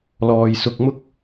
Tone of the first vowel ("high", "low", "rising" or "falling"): low